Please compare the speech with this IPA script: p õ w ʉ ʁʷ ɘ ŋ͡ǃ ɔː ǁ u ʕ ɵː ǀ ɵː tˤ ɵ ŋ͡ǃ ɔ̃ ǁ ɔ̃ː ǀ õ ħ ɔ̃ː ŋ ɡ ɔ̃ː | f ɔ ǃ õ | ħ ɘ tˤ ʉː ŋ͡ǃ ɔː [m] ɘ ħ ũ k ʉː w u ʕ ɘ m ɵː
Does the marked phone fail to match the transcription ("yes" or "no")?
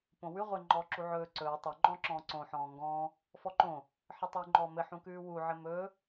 no